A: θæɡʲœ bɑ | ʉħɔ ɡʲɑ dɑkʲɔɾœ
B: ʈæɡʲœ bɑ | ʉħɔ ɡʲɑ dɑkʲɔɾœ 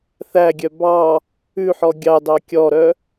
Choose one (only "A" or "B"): A